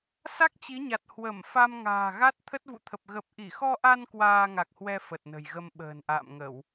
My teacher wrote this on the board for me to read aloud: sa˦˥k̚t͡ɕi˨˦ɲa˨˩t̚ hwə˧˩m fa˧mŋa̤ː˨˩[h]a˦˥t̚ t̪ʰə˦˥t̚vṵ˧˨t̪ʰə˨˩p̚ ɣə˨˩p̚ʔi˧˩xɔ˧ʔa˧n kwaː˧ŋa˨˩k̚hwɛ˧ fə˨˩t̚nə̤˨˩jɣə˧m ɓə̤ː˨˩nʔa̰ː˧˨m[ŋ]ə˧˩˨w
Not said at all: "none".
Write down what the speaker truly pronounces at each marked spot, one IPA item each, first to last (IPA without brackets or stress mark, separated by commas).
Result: ɣ, ŋ